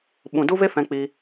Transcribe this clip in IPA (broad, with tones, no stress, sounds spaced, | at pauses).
ɓ ũ˧ d u˦ v e˦ f ɛ̃˦ k͡p i˦